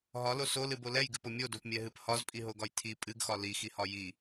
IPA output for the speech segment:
ɦɒlo solɨbo lɛjɡɨpo mʲodopmʲɛɦɨp hɒzpʼiɦoɡɒj tʰi pʼɨɡxɒ lixihɒ ji

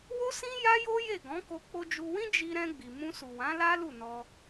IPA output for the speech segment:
wo˦sĩ˦ ja˦jo˦je˦˨ɡɔ̃˨˦ ko˧ k͡po˧d͡ʒu˧wĩ˦ d͡ʒi˧ɾɛ̃˧ ɡ͡bi˨mũ˧su˨wã˨˦ la˦ lu˦˨nɔ˧

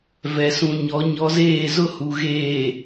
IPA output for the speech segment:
vɛ˨sũ˨ɲɔ˨˦ ɲɔ˨˦zeː˦˨zʊ˦ hu˨ɣeː˨

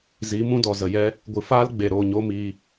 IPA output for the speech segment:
zi˨˦mũ˦dɔ˨ zə˨jɛ˦ | ɡʷɨ˨faː˦l ɡ͡be˨ ɾo˦˨ɲo˦ miː˧

